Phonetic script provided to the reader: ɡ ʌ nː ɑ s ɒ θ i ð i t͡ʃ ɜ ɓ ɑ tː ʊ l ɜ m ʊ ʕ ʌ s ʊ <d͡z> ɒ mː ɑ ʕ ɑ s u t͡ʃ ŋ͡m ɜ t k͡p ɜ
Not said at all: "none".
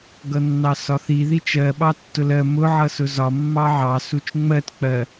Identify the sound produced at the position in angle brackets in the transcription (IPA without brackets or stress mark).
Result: z